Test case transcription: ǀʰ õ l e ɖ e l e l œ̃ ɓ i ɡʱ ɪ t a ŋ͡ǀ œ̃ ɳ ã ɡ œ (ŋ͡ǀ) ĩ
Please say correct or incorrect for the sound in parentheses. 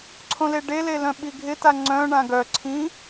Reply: incorrect